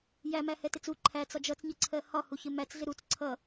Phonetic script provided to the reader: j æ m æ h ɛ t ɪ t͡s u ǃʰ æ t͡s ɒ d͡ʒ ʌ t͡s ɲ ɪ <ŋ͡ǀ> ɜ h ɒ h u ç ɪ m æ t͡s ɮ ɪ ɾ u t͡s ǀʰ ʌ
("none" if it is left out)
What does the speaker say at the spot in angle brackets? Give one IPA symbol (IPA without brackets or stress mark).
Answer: ǀʰ